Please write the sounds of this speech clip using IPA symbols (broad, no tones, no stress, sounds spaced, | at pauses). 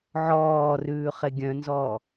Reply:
ʕ ɔː r ʉː χ e ɡʲ œ̃ n z ɔː